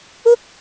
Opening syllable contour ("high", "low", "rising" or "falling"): high